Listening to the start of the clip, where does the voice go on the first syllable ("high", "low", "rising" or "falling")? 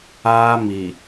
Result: high